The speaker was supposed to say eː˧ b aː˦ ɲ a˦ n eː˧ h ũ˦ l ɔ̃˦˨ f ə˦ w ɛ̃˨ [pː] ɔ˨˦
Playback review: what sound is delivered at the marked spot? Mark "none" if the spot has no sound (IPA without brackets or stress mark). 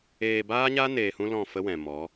m